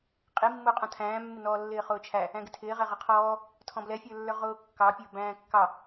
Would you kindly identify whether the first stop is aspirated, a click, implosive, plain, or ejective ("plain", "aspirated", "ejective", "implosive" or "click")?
ejective